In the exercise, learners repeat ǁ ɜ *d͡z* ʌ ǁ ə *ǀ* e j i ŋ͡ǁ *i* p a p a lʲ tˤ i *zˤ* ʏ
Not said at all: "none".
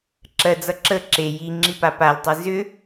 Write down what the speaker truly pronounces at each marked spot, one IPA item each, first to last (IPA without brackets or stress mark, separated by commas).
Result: d͡z, ǁ, i, z